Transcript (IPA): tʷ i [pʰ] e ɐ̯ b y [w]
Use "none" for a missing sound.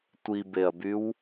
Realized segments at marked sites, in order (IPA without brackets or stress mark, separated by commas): b, w